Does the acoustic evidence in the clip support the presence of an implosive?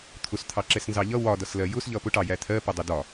no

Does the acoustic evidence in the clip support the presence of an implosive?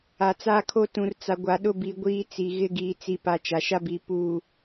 yes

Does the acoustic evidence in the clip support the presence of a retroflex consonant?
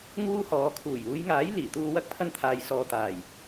no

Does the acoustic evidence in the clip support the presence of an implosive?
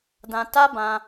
no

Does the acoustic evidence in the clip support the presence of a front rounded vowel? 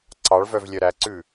yes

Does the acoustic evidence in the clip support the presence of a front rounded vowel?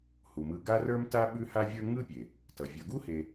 no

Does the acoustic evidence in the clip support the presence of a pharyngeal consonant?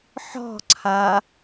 yes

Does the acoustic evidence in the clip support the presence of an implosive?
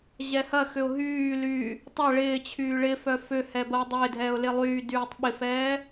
yes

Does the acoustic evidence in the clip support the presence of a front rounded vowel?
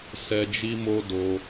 no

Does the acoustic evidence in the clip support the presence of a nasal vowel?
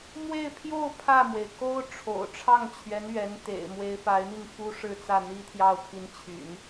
no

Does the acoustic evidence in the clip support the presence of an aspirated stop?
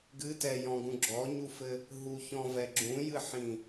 no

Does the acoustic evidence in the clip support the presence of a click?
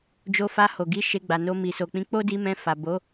no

